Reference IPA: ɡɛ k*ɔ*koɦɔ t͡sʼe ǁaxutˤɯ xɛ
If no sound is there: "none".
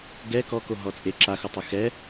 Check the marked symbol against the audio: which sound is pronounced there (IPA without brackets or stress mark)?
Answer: ɔ